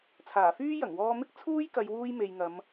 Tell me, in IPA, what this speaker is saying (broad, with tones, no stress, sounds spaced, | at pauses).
t͡sʰ aː˨˩ f yː˥ j ɐ˨˩ ŋ w ɔː˧ m ɪ˥ k̚ t͡sʰ uː˥ j k ɐ˨˧ j w uː˧ j m e˨ j ŋ ɐ˨˧ m